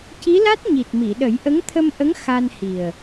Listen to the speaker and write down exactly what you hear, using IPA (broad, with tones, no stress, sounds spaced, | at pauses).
c i˧˥ l a˦˥ t̚ ɲ i˨˩ t̚ m i˨˩˨ ɗ ə˨˩˦ j ʔ ə˧˥ ŋ t̪ʰ ə˧ m ʔ ə˧˥ ŋ x a˧ n h i˨˩ ə̯